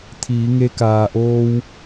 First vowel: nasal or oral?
oral